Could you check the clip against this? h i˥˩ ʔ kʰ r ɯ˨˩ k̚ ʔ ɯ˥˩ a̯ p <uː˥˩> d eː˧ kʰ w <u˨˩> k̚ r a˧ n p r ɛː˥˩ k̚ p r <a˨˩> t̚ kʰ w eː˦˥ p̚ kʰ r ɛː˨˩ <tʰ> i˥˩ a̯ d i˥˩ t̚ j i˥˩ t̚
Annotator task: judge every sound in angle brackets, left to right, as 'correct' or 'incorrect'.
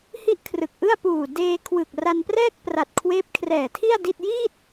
incorrect: uː˨˩, incorrect: ɯ˨˩, correct, correct

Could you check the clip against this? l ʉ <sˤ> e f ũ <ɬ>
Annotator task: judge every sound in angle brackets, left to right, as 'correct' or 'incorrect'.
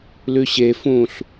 incorrect: ɕ, correct

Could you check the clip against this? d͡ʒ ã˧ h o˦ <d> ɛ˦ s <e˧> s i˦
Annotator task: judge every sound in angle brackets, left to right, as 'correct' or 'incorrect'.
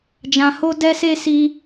correct, incorrect: e˦

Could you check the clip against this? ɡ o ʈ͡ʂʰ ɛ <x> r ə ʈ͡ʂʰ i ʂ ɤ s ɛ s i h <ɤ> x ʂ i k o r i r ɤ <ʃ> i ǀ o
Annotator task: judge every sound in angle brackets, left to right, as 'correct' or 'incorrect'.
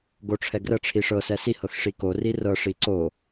incorrect: ɡ, correct, incorrect: ʂ

